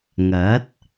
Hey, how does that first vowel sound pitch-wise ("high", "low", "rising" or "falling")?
rising